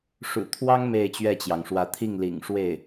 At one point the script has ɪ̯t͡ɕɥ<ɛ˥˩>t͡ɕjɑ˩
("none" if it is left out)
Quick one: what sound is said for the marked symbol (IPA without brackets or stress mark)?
ɛ˥˩